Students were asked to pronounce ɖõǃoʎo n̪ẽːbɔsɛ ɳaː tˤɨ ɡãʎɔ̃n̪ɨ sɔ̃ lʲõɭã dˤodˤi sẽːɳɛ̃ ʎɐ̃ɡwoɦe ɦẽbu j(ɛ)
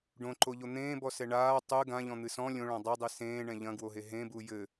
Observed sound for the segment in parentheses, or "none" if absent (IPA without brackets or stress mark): ɘ